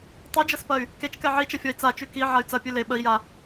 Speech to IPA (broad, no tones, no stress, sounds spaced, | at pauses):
tˤ ʉ d͡ʒ ɐ s p ɐ y̯ | k e t͡ʃ k ɛ ʕ i t͡ʃ ɐ fʲ ɔ i̯ t͡s a t͡ʃ ʉ k i ʕ a y̯ t͡s ɐ pʲ ʉ l e ɓ ə i̯ j a